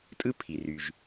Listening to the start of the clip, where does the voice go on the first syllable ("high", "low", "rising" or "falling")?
high